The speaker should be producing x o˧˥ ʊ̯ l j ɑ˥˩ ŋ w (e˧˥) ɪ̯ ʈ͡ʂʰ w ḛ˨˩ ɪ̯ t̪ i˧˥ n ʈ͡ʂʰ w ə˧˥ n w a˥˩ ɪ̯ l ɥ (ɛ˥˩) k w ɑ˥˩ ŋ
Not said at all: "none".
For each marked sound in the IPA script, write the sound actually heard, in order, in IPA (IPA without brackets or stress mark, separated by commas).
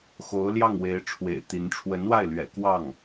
e˧˥, ɛ̰˨˩